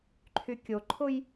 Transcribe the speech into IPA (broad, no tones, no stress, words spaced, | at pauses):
ǃʰykʲoǃʰʊj